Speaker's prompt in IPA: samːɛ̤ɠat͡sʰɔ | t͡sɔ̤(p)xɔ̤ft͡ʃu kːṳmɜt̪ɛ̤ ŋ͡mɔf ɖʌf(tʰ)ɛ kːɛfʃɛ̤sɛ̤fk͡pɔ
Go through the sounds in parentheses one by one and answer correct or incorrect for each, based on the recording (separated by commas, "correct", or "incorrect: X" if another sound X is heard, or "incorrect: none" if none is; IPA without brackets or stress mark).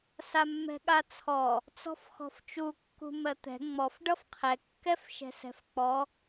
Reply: incorrect: f, incorrect: qʰ